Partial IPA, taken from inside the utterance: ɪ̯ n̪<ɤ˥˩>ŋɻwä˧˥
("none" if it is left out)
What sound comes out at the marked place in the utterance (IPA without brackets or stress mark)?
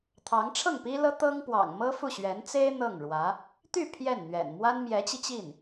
ɤ˥˩